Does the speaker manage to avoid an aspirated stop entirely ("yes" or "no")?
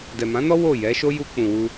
yes